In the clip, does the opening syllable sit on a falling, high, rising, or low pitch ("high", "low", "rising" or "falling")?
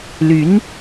rising